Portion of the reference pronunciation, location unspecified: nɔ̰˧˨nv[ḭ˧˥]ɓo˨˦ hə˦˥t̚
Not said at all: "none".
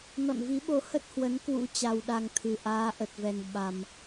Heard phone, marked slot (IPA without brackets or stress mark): i˨˦